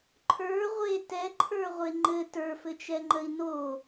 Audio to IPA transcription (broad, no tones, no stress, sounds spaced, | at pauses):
ǃʰ ə˞ ʁʷ e t ɛ ǃʰ ə˞ ʁʷ e ŋ͡ǃ ɘ t ə˞ f ɘ t͡ʃ ɛ ŋ͡ǃ ə i̯ n o